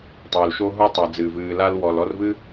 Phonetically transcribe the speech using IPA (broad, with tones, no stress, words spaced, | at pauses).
tˤoː˨lʃoː˥ ɦu˦tˤa˨ d͡zɨː˩vɨː˨ la˦l wɔː˨lɔ˦rvɨ˥